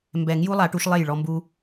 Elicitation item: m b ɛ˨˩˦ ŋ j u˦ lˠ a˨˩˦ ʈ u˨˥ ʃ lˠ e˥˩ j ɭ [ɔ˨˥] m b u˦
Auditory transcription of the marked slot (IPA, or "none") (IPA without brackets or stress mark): ɔ˦